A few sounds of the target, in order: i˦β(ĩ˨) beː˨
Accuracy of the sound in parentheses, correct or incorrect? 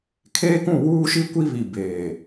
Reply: incorrect: i˨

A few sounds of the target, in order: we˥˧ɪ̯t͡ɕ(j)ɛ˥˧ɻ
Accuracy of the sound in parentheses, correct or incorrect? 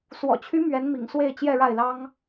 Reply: correct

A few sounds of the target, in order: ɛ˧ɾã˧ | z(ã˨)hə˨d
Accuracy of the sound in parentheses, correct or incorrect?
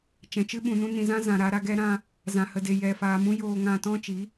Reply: correct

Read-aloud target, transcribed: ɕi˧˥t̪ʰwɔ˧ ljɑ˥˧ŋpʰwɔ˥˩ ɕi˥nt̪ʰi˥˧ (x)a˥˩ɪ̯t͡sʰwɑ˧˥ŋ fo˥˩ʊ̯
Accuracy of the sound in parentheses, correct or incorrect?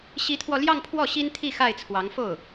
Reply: correct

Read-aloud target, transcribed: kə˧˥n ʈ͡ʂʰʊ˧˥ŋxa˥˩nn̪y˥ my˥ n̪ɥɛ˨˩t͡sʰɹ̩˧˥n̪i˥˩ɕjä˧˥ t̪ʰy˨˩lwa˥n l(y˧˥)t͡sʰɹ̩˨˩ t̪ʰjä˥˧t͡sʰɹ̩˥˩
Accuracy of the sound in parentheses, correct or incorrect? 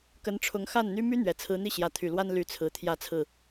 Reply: correct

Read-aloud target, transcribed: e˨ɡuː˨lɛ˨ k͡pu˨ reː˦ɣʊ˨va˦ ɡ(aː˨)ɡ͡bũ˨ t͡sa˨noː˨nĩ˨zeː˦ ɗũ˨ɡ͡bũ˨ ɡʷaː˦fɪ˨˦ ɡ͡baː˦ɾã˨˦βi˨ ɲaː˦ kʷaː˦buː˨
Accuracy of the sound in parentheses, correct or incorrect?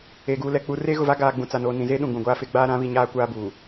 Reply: correct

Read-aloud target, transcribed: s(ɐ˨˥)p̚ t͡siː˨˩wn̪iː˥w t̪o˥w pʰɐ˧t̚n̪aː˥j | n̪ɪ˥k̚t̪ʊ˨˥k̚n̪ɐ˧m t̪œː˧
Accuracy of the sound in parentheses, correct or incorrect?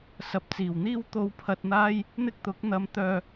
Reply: correct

